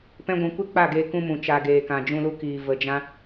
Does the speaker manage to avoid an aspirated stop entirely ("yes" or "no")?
yes